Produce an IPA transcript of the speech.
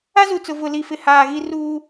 a˦ z u˨ t͡s ʊ˨ v ʊ˨ l i˨ f ɪ˨ h aː˨ ɣ i˦ r uː˦

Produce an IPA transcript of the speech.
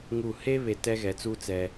ŋ u˦˨ h e˧ β e˧ t ɛ˦ ɣ ɛ˨˦ t͡s u˦ t͡s ɛ˧

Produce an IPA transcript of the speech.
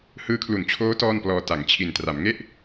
h ɯː˦˥ kʰ l u˨˩ n t͡ɕʰ oː˦˥ t ɔː˥˩ n p l ɔː˧ t a˩˦ ŋ t͡ɕʰ i˨˩ n t r a˩˦ m ŋ e˥˩ ʔ

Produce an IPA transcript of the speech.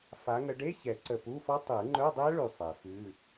f a˨˦ ŋ ə˨˦ ɖ e˧˥˧ ç ɛ˨˩˦ ǀ ə˨˩ p u˧˥˧ f ɔ˦˥ tˤ ɯ˨˩˦ ŋ͡ǃ œ˧˥˧ dˤ ɛ˦˥ ɭ ʉ˨˩ sˤ ɛ˨˩˦ f ʉ˧˥˧

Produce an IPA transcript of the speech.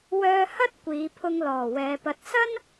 w œː˧ h ɐ˥ t̚ kʷ iː˨˧ pʰ ʊ˧ ŋ l ɔː˨˩ w ɛː˨˧ p ɐ˧ t̚ s ɐ˥ n

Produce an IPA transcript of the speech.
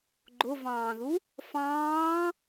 ɡ͡ǃ ʊ v ɑ̃ː ð u | f ɑ̃ː

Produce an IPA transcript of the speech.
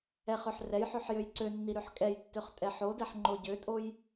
ɛ χ ø ħ r ɛ j ħ ø ħ j ø j ǀ ø nː i ɾ ø ħ kʼ ɛ j tː ø χ tʼ ɛ ħ o d ɛ ħ ŋ͡ǃ o ɟ ø tʼ o j

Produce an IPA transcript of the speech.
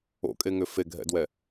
o̰ kʼ e ŋ ʏ f e ɡʱ ɛ̰ d w ɛ

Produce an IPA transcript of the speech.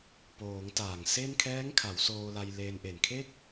p oː˩˦ ŋ t aː˨˩ ŋ s e˥˩ n kʰ ɛː˦˥ ŋ kʰ a˩˦ w s oː˧ l a˧ j l e˧ n ʔ e˨˩ n kʰ e˥˩ k̚

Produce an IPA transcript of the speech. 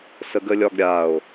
s ə ɡ ə lʲ ɒ ɡ ɾʲ a o̯

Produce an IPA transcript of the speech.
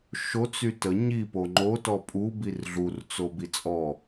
ʃ o t͡s y t ə ɲ i p o ŋ͡ǃ o t ɔ pʼ u b i r ɮ u r t͡s o b i t͡sʼ ɔ

